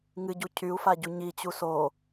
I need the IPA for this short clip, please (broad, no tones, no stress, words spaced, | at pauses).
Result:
ŋɨɟu cʰyu̯faɟu ɲit͡ɕu so